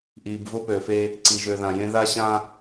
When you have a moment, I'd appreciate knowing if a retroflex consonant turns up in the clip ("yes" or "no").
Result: no